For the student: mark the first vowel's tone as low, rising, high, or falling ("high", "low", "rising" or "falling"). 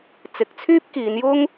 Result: low